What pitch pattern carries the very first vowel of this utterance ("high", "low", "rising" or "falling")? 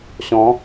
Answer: rising